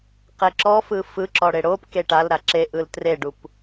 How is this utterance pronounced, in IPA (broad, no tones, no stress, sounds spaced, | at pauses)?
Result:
q e ǁ ɔ f ɯ f ɯ ǁ ɔ ɽ e ɽ o p k e ʈ a l ɾ a ǁ e ʔ ɯ l t r e ɖ u p